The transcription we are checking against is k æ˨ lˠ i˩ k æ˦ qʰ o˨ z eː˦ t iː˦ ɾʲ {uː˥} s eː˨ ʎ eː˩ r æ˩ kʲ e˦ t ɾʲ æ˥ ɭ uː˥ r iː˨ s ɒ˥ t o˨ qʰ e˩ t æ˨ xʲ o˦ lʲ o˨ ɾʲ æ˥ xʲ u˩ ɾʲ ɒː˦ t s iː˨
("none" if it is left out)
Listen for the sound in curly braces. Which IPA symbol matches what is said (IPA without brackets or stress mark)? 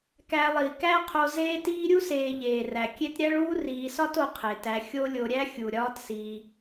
u˥